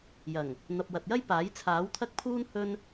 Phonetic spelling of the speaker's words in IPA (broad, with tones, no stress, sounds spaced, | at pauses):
j ɐ˨˩ ŋ | n̪ ɐ˨ p̚ w ɐ˨ t̚ j ɐ˥ j p aː˨˥ j t͡sʰ aː˨˥ w t̪ʰ ɐ˥ k̚ pʰ uː˥ n h ɵ˥ n